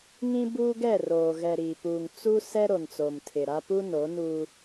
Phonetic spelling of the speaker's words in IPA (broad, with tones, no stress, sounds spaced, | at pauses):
ŋ ĩ˦ b uː˦ ɡ ɛ˦˨ r oː˨ ɣ ɛ˨ ɾ iː˨ p uː˨ ŋ t͡s u˦ s ɛ˦ ɾ o˨ n t͡s o˨ m tʰ ɪ˨ ɾ a˦ p u˦ n o˨˦ n u˦